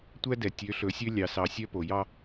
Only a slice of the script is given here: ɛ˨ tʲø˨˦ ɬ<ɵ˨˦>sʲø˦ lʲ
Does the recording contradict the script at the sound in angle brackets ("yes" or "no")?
no